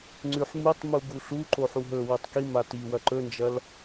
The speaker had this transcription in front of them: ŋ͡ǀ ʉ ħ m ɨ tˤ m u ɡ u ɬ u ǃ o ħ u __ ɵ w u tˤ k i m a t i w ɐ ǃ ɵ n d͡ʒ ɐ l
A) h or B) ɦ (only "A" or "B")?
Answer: B